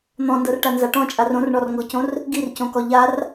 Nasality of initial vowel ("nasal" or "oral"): nasal